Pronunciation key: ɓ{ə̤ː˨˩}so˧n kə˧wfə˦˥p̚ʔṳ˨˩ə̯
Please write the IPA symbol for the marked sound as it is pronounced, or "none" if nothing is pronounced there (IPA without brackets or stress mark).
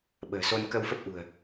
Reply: ə̤ː˨˩